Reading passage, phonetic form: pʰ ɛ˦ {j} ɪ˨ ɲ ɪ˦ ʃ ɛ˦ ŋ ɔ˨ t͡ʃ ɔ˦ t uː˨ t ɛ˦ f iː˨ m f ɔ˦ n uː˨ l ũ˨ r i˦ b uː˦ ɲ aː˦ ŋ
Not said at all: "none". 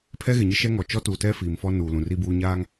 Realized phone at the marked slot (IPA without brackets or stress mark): ɣ